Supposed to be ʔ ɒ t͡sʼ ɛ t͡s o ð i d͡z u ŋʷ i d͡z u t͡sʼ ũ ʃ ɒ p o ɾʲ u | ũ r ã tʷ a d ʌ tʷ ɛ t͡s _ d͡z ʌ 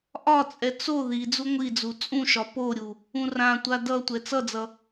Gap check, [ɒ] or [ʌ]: ʌ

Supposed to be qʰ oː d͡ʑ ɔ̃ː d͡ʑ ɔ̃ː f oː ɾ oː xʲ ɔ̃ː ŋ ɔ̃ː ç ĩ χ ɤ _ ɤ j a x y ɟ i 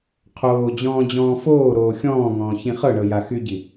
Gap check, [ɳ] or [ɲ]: ɳ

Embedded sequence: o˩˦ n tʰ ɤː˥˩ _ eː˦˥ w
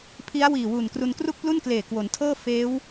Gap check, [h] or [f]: f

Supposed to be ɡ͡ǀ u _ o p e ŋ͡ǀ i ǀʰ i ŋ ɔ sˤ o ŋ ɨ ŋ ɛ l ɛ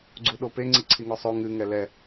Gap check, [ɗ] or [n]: ɗ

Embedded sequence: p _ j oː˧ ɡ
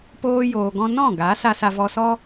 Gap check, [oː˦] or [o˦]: oː˦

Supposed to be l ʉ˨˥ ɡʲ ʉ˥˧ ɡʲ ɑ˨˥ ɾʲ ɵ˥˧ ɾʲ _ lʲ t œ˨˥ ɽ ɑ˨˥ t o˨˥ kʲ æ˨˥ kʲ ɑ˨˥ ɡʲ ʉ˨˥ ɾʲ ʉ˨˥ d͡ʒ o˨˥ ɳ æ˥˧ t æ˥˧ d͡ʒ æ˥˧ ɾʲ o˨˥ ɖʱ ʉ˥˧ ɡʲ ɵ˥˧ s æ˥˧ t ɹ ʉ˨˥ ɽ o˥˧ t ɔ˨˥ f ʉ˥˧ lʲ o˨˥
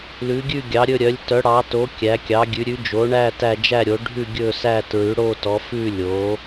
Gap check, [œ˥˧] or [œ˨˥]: œ˨˥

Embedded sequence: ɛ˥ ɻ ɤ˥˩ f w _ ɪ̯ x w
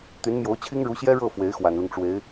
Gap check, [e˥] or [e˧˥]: e˧˥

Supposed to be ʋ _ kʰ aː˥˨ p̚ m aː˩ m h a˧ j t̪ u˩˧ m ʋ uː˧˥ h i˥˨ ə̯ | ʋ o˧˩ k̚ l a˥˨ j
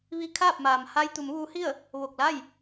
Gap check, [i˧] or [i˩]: i˧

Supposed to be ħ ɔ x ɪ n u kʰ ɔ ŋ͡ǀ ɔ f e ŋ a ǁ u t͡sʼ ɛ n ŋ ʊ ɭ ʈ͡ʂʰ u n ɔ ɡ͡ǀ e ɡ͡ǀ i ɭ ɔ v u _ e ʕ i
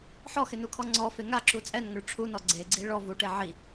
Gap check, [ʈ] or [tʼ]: ʈ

